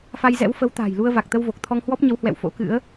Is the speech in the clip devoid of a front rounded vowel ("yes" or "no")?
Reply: yes